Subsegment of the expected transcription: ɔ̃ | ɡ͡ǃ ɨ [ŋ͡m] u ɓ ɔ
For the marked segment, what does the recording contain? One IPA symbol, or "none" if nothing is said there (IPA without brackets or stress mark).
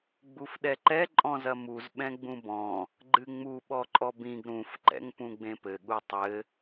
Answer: ŋ͡m